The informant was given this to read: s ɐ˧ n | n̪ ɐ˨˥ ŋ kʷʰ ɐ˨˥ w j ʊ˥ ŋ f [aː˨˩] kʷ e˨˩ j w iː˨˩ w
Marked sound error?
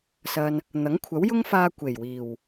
yes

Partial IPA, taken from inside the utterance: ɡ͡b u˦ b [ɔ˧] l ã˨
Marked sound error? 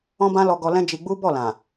yes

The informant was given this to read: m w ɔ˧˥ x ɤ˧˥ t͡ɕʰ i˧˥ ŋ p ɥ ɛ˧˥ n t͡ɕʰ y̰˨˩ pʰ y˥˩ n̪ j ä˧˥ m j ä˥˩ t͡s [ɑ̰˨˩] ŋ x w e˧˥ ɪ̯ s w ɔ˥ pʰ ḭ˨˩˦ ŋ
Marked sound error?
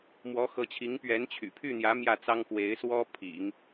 yes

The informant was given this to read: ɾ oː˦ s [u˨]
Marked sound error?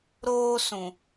yes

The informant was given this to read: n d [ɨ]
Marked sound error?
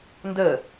yes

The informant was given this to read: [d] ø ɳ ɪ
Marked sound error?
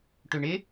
yes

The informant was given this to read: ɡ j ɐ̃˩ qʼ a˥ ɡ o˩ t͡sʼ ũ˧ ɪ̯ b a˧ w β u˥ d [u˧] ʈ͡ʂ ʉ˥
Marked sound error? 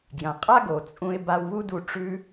no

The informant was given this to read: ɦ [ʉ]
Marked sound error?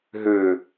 no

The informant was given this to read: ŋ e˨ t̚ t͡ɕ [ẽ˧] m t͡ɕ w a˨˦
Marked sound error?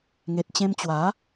no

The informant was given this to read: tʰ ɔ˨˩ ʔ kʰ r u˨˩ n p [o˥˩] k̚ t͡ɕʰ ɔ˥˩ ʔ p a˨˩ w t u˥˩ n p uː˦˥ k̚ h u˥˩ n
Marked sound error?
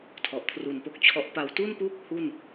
no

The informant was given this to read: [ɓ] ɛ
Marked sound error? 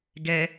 yes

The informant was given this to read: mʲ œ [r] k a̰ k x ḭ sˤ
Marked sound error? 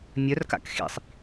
no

